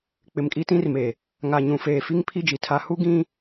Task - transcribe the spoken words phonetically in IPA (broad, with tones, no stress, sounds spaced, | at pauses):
k͡p ɪ˨ m kʼ i˦ t ĩ˦ r m e˨ | ŋ a˨ ɲ ũ˨ f eː˨ f i˦ ŋ pʰ i˦ d͡ʒ i˨ tʰ a˦ h u˦ ɡ ĩ˦